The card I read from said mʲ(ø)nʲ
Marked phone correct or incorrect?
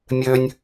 correct